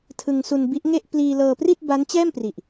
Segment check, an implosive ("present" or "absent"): absent